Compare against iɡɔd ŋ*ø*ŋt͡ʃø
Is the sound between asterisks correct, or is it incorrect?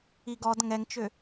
incorrect